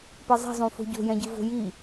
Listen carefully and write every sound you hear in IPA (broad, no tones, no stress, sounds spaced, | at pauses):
p ɛ zˤ i̤ zˤ ũ f o̤ ɟ o̤ j ɛ̃ ɟ ɨ v o̤ j i